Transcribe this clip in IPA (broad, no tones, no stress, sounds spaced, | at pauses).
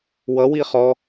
w ʌ w i χ ɔ